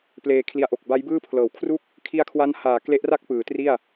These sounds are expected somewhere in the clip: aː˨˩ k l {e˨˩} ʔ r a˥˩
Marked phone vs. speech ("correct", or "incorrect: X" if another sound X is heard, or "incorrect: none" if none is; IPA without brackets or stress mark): incorrect: e˦˥